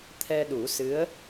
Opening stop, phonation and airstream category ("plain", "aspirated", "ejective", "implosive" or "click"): aspirated